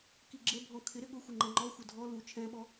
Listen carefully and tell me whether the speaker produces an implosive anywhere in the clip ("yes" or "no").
yes